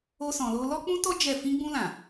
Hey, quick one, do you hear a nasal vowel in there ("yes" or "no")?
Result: yes